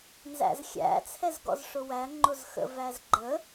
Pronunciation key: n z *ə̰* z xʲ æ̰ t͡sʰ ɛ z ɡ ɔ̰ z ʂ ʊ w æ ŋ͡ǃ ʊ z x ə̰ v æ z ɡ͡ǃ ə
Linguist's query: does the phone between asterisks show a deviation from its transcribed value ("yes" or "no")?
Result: yes